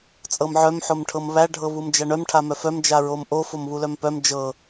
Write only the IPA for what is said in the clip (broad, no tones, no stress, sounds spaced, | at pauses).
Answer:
t͡sʼ ɤ m ʕ œ m ħ o m ʈʰ ɤ m β æ ɖʱ ɤ β u m d͡ʒ æ ɳ œ m ʈʰ a m œ f œ m d͡ʒ a ɹ o m ʔ o f o m β u l œ m p œ m d͡ʒ ɤ